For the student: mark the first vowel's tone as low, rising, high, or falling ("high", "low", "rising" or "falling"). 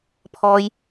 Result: low